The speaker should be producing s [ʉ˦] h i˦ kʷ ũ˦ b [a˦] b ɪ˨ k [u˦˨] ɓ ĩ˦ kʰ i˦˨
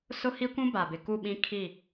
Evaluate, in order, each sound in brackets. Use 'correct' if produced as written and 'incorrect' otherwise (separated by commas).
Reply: incorrect, incorrect, correct